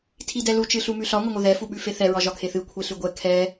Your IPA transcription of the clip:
tʰ i d ɛ l u t͡ʃ ɨ ɬ u m ʉ ɬ ɒ ŋʷ ɘ ŋʷ ɘ ð ɛ f u ɓ ʉ f e θ ɛ ɹ ɒ ʒ ɒ kʰ e θ ɨ kʷʰ e ɬ ʉ ɡʷ ɛ kʰ ɛ

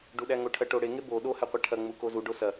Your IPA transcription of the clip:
ɖ u ɗ æ ŋ o ʈʰ ɐ ʈ o ɽ e ŋ e b o ɗ o h æ qʷ æ ʈʰ ɐ ŋ͡m u k o z u ɖ o s ɐ

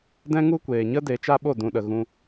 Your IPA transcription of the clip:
d ɛ̃˧ ŋ u˦ kʷ eː˨ ɲ ə˦ d e˨˦ t͡ʃ a˦ ɓ o˦˨ d ũ˨ ɗ ə˨ ɣ ũ˧

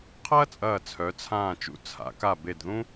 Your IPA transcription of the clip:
qʰ ɐː˥ t͡sʼ ɐː˧˩ t͡sʰ œ˩˧ t͡sʰ ãː˧˩ t͡ʃ ṵ˧˩ t͡sʰ a̰˩˧ k a˧˩ b e˧˩ d ð ũ˥

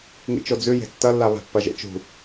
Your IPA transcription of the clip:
ŋ ḭ t͡ʃ o d͡z ʉ j e̤ tː ɐ lː a β a̤ pː ɐ ʒ ḛ t͡ʃ ṳ

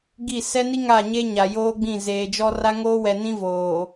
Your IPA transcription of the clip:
ɡ i˦˨ s ɛ˦ n i˦ ŋ a˦˨ ɲ e˦ ɲ a˨ j oː˦ ɡ͡b ĩ˦˨ z eː˨ d͡ʒ ɔ˦ r a˦ ŋ oː˦ w ɛ˨ n ĩ˦ v oː˨

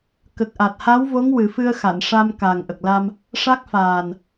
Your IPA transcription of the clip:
k ə˨˩ k̚ ʔ a˨˩ t̚ h a˧˥ w v o˧˥ ŋ w ɨ˨˩˦ f ɨ˧ ə̯ x a˨˩˨ n ʂ a˧ m k a˨˩ ŋ ʔ ə˨˩ k̚ l a˧ m | ʂ a˦˥ k̚ f aː˨˩ n

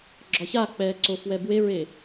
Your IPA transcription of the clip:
ɡ͡ǁ ɒ ç a k͡p ɛː ǀ o f w ɛ b w e ɹ e

